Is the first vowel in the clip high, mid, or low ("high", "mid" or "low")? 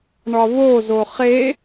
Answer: low